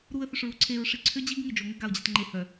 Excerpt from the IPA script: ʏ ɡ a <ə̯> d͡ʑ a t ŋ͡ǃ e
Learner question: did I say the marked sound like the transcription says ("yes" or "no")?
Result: no